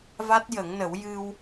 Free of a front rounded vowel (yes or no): yes